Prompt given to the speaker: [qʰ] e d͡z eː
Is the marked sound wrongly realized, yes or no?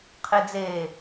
no